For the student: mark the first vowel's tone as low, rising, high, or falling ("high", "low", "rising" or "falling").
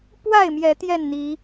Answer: falling